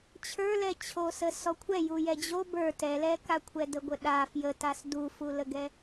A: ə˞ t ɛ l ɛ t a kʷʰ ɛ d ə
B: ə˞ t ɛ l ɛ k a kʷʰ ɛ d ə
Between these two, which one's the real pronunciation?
B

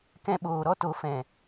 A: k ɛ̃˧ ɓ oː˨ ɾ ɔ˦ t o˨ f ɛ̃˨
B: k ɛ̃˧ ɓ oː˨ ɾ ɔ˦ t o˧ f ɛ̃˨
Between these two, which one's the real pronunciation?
A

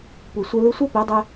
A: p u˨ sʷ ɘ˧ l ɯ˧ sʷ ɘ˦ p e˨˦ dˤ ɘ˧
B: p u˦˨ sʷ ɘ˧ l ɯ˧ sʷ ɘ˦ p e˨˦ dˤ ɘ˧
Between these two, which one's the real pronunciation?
A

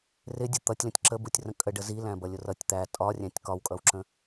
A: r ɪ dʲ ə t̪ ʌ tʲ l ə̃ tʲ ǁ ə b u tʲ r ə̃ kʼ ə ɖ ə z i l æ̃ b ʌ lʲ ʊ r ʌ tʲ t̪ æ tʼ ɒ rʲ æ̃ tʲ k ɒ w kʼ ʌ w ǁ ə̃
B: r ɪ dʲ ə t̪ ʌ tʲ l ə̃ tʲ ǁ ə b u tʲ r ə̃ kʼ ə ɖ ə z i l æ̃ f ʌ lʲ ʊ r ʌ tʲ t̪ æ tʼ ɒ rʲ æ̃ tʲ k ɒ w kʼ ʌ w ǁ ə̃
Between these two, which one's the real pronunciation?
A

